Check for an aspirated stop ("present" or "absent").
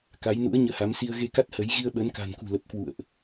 absent